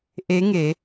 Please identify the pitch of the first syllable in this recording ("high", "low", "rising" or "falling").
rising